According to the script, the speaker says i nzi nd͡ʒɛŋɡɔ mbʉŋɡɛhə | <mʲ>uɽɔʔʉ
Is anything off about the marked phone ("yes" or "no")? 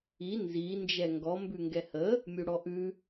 no